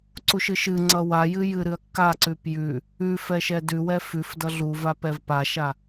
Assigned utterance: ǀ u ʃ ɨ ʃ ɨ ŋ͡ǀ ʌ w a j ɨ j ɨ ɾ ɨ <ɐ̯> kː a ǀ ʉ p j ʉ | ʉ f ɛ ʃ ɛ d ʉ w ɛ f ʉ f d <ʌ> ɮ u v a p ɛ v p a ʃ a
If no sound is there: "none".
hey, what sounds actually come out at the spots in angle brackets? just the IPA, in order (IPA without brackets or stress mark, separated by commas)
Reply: ɐ̯, ʌ